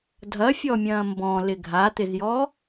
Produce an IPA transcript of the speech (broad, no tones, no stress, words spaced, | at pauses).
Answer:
dʱɐfʲɔmʲɐ̃ː mbɔ̃lɪ ɡʱat̪ɪzjɔ